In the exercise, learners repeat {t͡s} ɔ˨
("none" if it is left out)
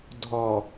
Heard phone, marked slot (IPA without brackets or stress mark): dʱ